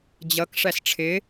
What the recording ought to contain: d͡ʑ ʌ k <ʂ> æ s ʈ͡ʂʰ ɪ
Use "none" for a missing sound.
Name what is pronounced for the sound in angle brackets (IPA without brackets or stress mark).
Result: ʂ